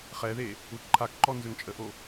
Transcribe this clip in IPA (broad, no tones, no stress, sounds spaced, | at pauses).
χ ɛ ð e | u t ǃʰ a k ǃ ɔ n z ø ŋ t͡ʃʼ ə ʔ o